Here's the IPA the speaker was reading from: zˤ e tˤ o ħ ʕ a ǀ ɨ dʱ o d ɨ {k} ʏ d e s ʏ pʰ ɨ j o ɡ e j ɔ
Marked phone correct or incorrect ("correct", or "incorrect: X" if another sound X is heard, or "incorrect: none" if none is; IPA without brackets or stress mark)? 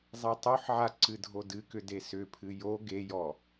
correct